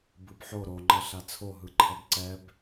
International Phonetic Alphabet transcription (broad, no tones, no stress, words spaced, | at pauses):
bɯbħo ɾoŋ͡ǃʌ ɬat͡sʰoɦɯ ǃʰʌbǀɛb